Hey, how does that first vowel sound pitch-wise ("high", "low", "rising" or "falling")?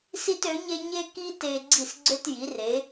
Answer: high